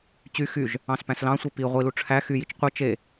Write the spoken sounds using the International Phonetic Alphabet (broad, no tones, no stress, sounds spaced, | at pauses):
t͡ɕ y x y ʒ | ɑ̃ s p æ̃ s l ɑ̃ sʷ i p i ʁʷ i l u ʈ͡ʂʰ æ x y j i t͡ʃ qʷ ɯ t͡ʃ e